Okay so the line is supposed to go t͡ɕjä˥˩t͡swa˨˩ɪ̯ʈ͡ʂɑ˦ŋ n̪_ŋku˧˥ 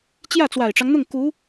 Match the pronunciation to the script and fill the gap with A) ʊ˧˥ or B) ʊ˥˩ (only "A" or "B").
B